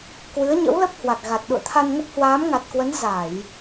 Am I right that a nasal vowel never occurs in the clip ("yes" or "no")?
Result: yes